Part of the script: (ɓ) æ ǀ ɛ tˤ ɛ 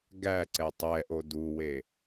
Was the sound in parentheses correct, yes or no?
no